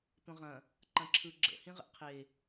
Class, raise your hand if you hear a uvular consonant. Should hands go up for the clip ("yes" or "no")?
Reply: yes